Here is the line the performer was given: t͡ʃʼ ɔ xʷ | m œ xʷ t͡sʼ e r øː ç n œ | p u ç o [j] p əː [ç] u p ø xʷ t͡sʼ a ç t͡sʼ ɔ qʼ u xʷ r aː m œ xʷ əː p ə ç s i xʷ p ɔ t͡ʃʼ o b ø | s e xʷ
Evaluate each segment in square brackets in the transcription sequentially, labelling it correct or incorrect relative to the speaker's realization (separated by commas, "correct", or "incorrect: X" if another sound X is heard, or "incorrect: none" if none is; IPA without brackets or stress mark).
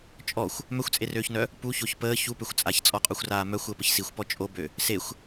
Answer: incorrect: ç, correct